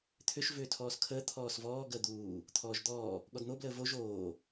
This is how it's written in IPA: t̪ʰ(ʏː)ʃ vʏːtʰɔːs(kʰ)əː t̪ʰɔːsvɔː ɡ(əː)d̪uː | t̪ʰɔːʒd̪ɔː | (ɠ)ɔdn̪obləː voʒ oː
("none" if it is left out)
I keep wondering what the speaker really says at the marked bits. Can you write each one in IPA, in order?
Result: ʏ, kʰ, əː, ɠ

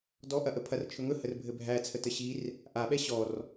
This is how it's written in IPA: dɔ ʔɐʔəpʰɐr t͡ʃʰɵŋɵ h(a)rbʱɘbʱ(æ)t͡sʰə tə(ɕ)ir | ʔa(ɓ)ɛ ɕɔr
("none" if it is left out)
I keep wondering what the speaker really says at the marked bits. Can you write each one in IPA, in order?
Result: ə, æ, ɕ, ɓ

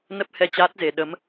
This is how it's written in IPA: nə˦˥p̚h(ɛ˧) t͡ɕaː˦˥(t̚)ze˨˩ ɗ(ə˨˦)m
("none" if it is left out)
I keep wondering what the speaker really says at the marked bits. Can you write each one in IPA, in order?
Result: ɛ˧, t̚, ə˨˦

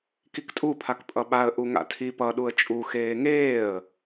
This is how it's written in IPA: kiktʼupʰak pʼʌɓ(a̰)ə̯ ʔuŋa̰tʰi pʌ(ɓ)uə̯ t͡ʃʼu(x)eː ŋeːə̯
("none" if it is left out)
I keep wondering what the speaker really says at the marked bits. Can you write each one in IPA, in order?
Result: a, ɗ, x

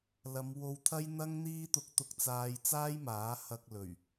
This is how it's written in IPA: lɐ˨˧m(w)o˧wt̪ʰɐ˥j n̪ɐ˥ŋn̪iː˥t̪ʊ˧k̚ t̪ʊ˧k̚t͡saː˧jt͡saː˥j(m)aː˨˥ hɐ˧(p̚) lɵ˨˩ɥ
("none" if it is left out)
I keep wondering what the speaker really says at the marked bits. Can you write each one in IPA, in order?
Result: w, m, k̚

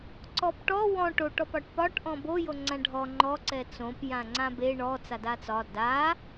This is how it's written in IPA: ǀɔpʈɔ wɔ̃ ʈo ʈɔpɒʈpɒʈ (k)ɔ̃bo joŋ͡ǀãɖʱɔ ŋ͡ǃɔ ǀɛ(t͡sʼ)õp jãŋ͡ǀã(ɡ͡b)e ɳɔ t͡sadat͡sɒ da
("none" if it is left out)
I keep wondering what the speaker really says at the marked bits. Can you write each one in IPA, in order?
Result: ʔ, t͡s, b

